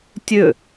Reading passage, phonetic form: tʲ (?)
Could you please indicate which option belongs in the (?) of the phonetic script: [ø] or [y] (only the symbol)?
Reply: ø